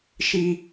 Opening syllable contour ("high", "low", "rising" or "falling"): high